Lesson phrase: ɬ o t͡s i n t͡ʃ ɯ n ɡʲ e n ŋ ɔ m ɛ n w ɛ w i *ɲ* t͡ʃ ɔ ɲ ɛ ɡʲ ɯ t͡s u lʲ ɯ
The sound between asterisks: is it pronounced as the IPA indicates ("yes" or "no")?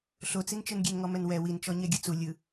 no